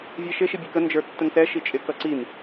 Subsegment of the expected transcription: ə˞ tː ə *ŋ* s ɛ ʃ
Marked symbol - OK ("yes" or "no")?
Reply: yes